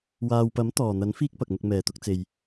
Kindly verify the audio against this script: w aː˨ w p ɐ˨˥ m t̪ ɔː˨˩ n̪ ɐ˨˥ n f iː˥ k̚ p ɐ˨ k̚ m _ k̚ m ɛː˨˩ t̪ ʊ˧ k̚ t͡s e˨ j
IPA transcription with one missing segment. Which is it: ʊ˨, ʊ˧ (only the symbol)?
ʊ˧